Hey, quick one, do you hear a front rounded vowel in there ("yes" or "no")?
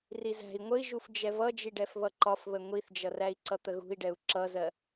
no